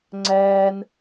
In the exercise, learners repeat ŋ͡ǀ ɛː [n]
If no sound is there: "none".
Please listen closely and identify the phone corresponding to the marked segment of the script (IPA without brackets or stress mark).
n